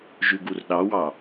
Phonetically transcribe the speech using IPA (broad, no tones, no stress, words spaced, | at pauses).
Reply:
ʒʉɡurɗɑwɑ